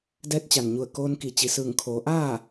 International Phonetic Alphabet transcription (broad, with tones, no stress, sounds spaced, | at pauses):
d ɛː˧˥ t̚ t͡ɕ a˩ n ɲ u˧˩ ə̯ k oː˧ n k i˩˧ t͡ɕ i˩ s ɯː˧˩ ŋ kʰ oː˩˧ ʔ aː˥˨